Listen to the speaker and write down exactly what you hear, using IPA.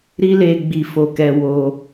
ɾi˦le˧ ɡ͡bi˧ fo˧kɛ˧ wo˧

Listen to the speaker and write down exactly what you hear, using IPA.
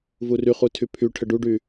vuryχu tʰypʰy ʈʰəɖuɖy

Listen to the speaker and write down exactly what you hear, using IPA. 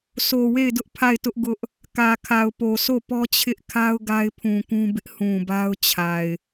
so˨we˦˨ɪ̯dʊ˦ʔ pʰa˦˨ɪ̯tʊ˦ʔɡʊ˦ʔ | kä˨kʰa˨ʊ̯po˨sʰo˦˨ pɔ˦t͡ɕʰɪ˦ʔkʰa˦ʊ̯ ɡa˦ɪ̯pʰũ˨kũ˦bɪ˦ʔ hũ˨ba˦ʊ̯t͡ɕʰa˨ɪ̯

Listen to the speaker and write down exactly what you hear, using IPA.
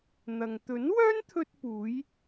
n̪ɐ˨ŋ t̪ɵ˨˥nwœː˥nt̪ʰɵ˧t̚puː˨˧j

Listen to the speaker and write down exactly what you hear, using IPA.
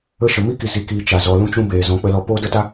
ə˧ʃə˨mi˦ki˨ zi˨kiː˨ t͡ʃa˨ zɔ˨lũ˧t͡ʃũ˧ beː˨ zɔ̃˨˦k͡pə˧lɔ˧ poː˦də˦ta˦

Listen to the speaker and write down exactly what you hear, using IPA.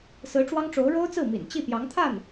sɹ̩˧˥ʈ͡ʂwɑ˥ŋʈ͡ʂo˧˥ʊ̯ ɻo˥ʊ̯t͡sɹ̩˥˩ mḭ˨˩nt͡ɕi˥˩ pjɑ˧˥ŋt̪ʰa˥˩n

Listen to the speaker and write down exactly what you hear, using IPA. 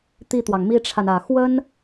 t̪i˥˩t̪wɑ˩ŋmi˥ʈ͡ʂʰa˨n ä˨˩ xwə˥n

